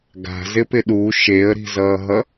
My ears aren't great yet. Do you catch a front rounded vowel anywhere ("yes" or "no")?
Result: no